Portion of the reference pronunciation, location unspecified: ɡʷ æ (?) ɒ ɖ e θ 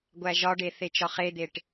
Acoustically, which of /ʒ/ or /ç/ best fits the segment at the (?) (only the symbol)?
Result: ʒ